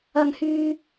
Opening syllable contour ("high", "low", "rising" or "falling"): high